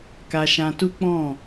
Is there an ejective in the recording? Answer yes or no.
no